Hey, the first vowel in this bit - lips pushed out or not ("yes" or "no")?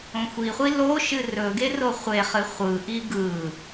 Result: yes